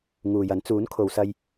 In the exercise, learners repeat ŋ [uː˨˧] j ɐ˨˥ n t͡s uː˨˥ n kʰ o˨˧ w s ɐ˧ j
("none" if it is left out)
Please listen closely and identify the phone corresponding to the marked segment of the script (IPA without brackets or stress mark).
uː˨